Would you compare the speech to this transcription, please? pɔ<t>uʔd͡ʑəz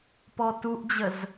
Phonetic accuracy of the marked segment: correct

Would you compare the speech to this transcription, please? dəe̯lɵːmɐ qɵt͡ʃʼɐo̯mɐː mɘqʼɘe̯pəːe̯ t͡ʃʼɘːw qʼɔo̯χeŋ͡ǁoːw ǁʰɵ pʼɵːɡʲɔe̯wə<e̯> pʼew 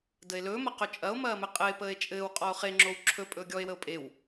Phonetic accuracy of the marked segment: incorrect: o̯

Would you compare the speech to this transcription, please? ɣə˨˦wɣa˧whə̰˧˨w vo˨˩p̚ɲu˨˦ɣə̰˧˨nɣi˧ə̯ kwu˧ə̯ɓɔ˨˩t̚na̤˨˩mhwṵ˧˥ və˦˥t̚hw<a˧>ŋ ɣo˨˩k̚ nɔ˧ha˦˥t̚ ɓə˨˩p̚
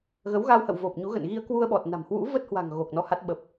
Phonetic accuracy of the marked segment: incorrect: a̤˨˩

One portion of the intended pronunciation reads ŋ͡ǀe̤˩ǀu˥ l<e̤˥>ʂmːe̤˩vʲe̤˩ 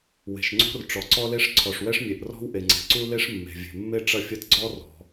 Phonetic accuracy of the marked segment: incorrect: e˥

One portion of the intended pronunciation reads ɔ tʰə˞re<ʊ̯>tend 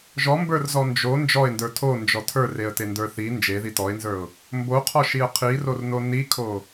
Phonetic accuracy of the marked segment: incorrect: ə̯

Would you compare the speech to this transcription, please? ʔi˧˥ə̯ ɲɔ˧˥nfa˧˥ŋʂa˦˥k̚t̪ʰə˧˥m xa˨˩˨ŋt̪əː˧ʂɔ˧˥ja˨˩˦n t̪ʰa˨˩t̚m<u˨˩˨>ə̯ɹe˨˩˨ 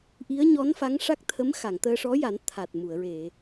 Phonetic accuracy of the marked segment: correct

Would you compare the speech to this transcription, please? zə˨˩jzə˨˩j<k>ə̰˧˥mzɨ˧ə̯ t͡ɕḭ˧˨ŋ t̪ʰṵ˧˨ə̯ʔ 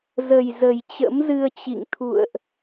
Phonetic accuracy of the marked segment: incorrect: t͡ɕ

